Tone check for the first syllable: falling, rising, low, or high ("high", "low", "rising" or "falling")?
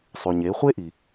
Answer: low